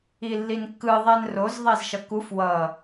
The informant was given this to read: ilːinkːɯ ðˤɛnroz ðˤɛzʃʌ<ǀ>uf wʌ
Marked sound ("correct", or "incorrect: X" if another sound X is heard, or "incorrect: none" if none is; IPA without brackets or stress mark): incorrect: k